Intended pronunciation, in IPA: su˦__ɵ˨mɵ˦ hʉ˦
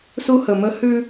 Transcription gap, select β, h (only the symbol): h